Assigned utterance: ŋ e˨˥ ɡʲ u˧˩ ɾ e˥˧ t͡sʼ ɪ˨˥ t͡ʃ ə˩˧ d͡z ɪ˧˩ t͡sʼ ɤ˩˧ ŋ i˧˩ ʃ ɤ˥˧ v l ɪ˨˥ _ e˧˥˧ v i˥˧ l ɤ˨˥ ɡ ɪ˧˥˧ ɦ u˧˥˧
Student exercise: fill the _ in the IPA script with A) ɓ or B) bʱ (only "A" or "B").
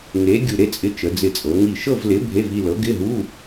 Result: B